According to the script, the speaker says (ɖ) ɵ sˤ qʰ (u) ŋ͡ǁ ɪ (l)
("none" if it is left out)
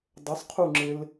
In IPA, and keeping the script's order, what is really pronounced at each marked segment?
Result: dˤ, u, l

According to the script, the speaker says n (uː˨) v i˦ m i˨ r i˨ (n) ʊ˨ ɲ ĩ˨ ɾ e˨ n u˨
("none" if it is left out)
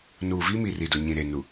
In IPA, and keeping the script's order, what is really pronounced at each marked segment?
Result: uː˨, d

